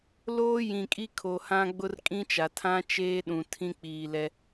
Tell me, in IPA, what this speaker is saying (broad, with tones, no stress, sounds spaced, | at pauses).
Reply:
l oː˦ j ĩ˨ kʼ i˦ kʰ o˨ h ã˦ ɡ͡b ʊ˦ r kʼ ĩ˦ t͡ʃ a˨ tʰ ã˦ t͡ʃ eː˦ ɗ ũ˨ tʰ ĩ˦ k͡p iː˨ l ɛ˦